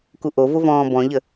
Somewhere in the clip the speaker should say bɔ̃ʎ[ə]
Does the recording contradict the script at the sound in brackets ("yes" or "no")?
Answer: no